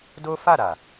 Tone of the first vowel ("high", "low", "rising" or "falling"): high